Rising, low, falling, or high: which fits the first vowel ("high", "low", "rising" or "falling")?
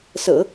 low